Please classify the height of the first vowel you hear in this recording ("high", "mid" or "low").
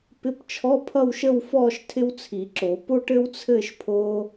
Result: high